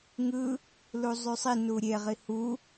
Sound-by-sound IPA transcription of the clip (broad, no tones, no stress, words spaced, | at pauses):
ŋɯ | luzˤysˤi nuɾʲe ʁihu